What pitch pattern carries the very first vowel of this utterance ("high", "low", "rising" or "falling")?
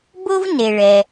high